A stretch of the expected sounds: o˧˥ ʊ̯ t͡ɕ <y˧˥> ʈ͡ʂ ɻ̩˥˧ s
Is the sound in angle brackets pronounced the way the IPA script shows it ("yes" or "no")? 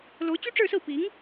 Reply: no